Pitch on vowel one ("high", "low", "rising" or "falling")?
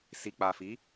low